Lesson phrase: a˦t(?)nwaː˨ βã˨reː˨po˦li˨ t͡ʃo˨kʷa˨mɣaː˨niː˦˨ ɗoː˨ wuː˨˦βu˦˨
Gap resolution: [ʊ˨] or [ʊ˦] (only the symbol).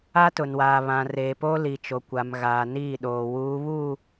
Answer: ʊ˨